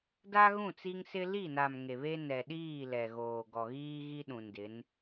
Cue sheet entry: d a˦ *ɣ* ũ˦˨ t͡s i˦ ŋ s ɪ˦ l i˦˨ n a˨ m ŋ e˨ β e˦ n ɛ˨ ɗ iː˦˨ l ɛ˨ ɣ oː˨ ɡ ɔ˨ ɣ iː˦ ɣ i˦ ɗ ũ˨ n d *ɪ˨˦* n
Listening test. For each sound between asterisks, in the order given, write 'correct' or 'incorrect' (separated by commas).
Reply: correct, correct